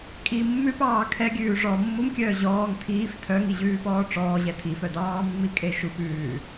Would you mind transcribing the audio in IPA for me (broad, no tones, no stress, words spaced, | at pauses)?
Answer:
kʼi mːʉpɑː kʰɛɡʲʉː ʐɔ mːumkʲœː ʑɔːŋ tʰiːf tʰœŋiʑʉːpɔː ʈ͡ʂɔːʑɛ tʰifœ dɑːmːikʼe ʃup ʉː